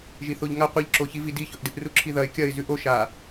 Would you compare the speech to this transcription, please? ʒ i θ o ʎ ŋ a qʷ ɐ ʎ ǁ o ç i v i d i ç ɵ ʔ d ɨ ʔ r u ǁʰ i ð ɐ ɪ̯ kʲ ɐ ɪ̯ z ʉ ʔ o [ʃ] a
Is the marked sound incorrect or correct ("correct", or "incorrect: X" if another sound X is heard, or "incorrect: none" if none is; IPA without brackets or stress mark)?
correct